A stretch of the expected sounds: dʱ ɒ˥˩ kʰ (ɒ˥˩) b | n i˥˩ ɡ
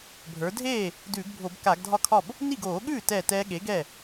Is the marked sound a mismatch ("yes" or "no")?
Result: no